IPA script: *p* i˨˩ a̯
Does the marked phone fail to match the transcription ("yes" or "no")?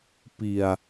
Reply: no